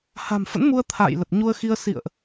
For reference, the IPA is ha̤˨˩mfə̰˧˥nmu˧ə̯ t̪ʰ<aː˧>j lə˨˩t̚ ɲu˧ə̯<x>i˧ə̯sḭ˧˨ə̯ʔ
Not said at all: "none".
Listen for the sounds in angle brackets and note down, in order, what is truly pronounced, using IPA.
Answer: a̰ː˧˨, x

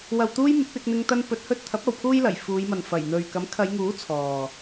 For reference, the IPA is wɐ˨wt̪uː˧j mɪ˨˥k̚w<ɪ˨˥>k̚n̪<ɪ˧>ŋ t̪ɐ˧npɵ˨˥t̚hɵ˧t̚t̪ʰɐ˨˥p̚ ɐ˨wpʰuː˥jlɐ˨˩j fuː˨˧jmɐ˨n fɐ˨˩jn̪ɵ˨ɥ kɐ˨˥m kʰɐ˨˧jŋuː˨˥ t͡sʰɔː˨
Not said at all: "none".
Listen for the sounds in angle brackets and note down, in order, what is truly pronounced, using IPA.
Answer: ɪ˧, ɪ˧

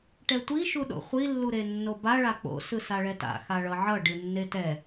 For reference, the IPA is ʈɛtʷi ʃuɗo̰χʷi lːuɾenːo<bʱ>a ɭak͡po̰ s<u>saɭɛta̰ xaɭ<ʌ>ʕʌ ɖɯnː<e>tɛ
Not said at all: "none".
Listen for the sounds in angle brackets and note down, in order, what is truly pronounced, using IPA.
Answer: b, ɯ, ʌ, e

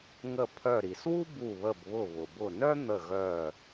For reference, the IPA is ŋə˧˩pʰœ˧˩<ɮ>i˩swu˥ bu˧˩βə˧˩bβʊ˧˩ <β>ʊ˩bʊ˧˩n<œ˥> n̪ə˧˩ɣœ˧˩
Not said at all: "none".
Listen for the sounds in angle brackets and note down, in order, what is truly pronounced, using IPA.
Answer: ɾ, β, œ˥

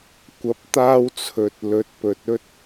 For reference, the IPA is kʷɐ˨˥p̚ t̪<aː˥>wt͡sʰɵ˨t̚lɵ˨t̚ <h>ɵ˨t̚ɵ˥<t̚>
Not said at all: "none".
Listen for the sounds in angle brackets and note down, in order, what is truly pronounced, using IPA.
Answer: aː˥, p, t̚

